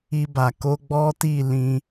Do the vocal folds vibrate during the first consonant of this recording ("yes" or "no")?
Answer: yes